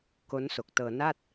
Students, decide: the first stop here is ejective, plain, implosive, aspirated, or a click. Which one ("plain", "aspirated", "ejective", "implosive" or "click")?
plain